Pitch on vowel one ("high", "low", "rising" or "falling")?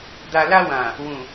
low